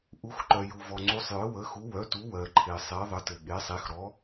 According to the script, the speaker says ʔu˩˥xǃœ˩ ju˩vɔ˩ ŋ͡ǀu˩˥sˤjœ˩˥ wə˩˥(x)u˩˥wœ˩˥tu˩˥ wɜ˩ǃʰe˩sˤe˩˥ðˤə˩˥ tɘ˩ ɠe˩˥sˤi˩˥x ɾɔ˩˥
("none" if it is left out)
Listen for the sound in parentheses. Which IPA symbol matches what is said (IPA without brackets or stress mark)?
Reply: x